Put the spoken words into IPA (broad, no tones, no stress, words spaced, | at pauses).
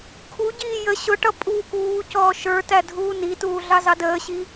kʰuɟiː jə ɕʊʈʌ pʼu kuːcɔː ʃə˞tædʱuː nituːɮɑzɑ dəːɕi